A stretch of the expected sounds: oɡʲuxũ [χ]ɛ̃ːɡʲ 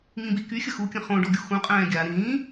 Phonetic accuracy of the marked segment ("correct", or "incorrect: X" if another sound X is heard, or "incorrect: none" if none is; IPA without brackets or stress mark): incorrect: qʼ